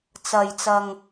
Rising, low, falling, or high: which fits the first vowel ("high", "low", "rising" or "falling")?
low